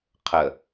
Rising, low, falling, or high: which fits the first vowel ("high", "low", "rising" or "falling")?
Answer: low